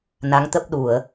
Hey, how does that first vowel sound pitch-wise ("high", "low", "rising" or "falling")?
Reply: rising